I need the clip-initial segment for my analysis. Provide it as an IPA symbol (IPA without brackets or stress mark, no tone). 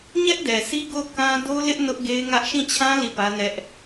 ɲ